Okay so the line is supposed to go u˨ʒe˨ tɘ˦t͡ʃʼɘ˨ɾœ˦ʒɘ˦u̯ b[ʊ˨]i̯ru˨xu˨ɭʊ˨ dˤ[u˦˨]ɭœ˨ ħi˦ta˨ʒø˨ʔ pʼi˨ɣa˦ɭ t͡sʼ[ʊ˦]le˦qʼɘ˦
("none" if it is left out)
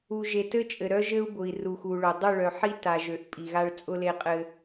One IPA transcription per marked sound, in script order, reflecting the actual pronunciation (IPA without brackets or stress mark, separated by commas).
ʊ˨, u˦˨, ʊ˦